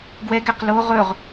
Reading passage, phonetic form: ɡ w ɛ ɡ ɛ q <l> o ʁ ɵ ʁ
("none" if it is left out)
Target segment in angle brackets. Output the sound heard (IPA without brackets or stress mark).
l